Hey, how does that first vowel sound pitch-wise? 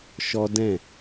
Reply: high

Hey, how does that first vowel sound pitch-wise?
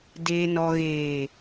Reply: low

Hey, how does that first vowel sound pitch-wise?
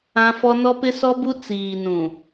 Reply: high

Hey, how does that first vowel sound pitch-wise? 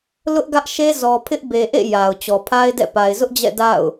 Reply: high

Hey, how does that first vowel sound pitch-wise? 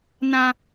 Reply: high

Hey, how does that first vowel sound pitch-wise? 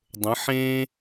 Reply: rising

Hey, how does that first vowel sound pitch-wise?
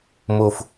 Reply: low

